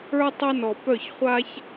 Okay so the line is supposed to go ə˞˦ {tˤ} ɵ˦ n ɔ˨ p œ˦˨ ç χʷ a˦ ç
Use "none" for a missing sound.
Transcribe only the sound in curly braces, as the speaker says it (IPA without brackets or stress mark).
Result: tˤ